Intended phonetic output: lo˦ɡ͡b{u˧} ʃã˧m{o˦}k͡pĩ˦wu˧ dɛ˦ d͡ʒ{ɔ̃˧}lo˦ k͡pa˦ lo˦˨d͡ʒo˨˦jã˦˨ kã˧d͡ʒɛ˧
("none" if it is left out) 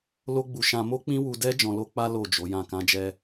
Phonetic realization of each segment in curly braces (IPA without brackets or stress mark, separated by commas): u˧, o˦, ɔ̃˧